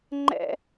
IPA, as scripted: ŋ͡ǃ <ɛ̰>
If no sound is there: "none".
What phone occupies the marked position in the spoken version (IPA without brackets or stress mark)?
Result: ɛ̰